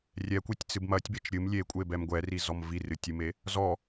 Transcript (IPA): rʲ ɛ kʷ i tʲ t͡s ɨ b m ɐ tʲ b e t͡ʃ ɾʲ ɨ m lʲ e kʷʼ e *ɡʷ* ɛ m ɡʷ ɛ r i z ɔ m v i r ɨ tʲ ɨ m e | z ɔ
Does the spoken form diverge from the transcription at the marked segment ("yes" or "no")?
yes